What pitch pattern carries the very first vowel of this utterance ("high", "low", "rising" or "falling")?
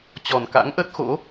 low